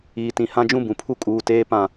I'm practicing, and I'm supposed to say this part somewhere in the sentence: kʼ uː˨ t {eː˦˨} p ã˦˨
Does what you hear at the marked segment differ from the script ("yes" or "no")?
yes